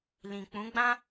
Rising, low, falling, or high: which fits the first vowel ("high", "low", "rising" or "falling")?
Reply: low